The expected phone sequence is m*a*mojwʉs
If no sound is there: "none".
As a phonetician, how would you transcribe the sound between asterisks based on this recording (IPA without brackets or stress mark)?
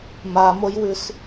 a